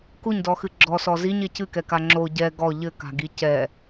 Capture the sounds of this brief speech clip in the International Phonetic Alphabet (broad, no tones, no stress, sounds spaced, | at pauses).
k u ɲ d ɔ x ɨ ɡ͡ǁ ɔ s ɔ z i ɲ e c ɨ k ɛ k a ŋ͡ǁ o ɟ ɛ ɡ ɔ ʎ ɘ k a̤ ɡ i c ɛ